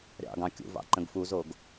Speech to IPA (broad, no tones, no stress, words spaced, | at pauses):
ɾʲɑ̰ɡɑ̃ kʲṵvɑ̰ ǃə̃ɡfuzoɡ